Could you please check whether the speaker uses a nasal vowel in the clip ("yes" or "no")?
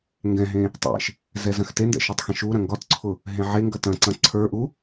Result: yes